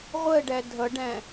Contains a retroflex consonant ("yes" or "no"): yes